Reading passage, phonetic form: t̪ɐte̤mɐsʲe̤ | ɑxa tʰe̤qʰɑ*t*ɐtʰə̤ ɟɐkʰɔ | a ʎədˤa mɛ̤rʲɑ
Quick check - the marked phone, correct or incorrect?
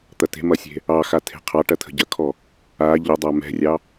incorrect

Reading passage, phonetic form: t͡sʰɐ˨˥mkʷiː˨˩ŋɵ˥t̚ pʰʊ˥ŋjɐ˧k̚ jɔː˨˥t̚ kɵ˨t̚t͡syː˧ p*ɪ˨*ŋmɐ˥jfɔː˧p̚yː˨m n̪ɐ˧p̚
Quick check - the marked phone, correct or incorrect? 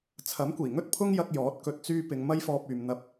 incorrect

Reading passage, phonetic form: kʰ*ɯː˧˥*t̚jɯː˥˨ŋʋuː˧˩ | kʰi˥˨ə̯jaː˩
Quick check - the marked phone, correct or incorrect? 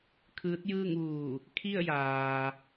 correct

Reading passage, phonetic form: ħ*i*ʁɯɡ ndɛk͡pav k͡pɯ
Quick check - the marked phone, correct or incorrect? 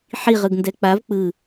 correct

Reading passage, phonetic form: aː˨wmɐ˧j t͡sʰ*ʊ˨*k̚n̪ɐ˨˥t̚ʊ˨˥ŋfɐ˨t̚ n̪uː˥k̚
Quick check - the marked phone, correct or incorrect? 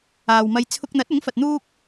incorrect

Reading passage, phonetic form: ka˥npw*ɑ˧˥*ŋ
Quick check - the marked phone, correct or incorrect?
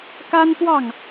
incorrect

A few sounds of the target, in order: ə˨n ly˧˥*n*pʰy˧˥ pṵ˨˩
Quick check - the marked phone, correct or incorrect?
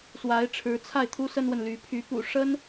incorrect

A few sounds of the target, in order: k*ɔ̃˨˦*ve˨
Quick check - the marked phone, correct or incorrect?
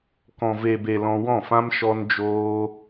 incorrect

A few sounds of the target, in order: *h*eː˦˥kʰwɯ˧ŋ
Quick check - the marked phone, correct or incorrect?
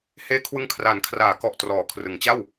correct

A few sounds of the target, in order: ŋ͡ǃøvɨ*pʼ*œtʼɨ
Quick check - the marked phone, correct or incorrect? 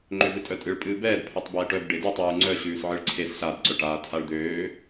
incorrect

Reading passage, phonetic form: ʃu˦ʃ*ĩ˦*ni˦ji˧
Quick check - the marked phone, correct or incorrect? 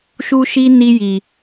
incorrect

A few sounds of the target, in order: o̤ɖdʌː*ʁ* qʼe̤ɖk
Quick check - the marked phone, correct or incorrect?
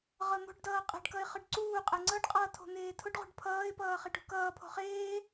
incorrect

